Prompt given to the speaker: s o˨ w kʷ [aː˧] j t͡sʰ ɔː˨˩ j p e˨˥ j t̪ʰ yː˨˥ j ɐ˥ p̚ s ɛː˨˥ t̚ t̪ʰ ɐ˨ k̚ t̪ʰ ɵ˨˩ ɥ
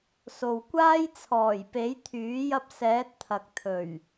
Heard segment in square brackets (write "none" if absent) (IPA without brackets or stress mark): aː˥